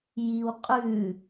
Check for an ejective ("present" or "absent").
present